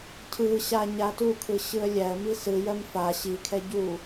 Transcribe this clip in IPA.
cʰɯ ɕaɲatukʰɯ ɕɯə̯lʲæə̯mi sɯjɜm fa ɕikʰɛ ɟu

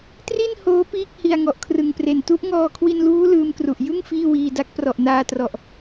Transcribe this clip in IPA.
tri˥˩n hoː˦˥ piː˥˩k̚ hi˧a̯ŋɔ˨˩ʔkʰrɯ˨˩ŋpre˨˩n tu˦˥ʔŋɔː˧kʰwi˧nluː˦˥ lɯː˦˥mkru˨˩ʔ jɯ˥˩ŋ fiː˥˩wiː˧da˦˥k̚ prɔ˨˩ʔnaː˧trɔ˨˩ʔ

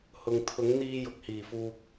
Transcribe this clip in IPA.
hʊ˨ŋ t̪ʰʊ˨˥ŋn̪iː˧jʊ˨k̚ hiː˨˩fuː˨k̚

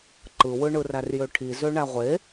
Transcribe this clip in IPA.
ǃɯwɯ ɳɯrærjøʈʰi zøɳæʁʷe

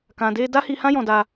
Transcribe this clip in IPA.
kã˧de˦ da˦hi˧hã˦ jɔ̃˧da˧

